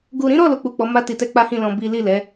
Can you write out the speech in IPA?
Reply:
ɡu˨ɾĩ˨˦ɾɔ˦˨ lo˧k͡pu˨k͡pɔ˨˦ ma˦ti˧tɛ˦ k͡pa˦hĩ˦˨lɔ̃˧ bi˦ li˦˨lɛ˨˦

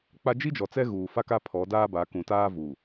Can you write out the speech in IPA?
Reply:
k͡pa˦ d͡ʒi˦d͡ʒɔ˨t͡sɛ˦ ɣuː˨fa˦ka˦ pʰɔ˨˦daː˦ba˨˦ kũ˨taː˦vuː˨

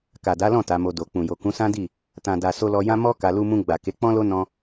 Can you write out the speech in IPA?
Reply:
ka˨da˨˦lɔ̃˦˨ ta˨˦mo˧do˨ k͡pũ˨jo˨ kũ˨˦sã˦di˦˨ | tã˨da˨ so˧lɔ˧jã˦ mɔ˦ ka˧ lu˧mũ˧ɡ͡ba˨ ke˨˦k͡pɔ̃˦lo˦ nɔ̃˦

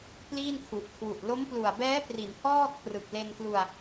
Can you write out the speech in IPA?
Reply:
pliː˥˩nkʰu˨˩ʔ kʰwu˨˩ʔ lo˦˥mplu˨˩a̯bɛː˦˥pri˩˦n hɔː˥˩kʰrɯ˨˩k̚le˧nklu˧a̯

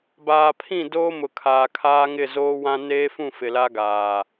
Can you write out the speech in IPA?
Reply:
baː˨pʰĩ˦˨ doː˦mʊ˨ kʰaː˨kʰaː˦ŋɪ˦˨ zoː˦wã˦ neː˦fũ˦˨ fɪ˨la˦ɡaː˨

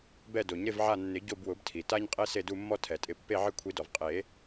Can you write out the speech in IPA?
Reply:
bɛ˦˨do˨˩˦ɲ ɾɪ˦˨vʕa˦˨nːɪ˨˩˦ ɟo˦˨bwʊ˨˩˦btʰi˩ta˦ɲ qʼe˦se˦˨du˦˨mːɔ˦ tʰɛ˨˩˦tʼɪ˦˨ pːe˦˨ʕɪ˦˨kʷʰi˨˩˦dɔ˩v qʼe˨˩˦

